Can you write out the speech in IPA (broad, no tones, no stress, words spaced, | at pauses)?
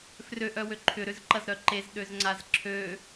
frøʔœwø ǃʰʏɾʏzǃɐz ɾœǃez ɗøzŋ͡ǀazǁʰø